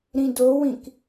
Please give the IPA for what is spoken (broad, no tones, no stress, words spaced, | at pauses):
ɾĩdowĩk